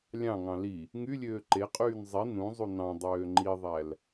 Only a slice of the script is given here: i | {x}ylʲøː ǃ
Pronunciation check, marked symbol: incorrect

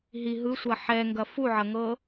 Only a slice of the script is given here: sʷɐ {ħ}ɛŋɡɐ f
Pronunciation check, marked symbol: correct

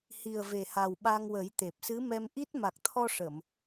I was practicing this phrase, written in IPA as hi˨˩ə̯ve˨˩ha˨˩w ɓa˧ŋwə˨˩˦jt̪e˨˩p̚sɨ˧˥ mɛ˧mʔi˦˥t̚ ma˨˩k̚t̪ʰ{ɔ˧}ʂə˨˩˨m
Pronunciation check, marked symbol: correct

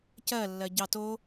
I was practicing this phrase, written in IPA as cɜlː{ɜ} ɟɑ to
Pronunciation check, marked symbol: correct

